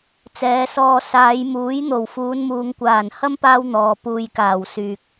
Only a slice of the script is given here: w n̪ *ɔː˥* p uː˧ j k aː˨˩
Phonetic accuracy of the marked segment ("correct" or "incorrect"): incorrect